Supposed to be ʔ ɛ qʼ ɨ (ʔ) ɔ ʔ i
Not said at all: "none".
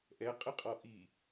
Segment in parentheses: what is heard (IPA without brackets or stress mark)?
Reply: qʼ